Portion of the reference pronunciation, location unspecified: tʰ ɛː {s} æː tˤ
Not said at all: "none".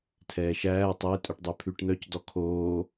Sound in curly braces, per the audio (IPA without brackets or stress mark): ʃ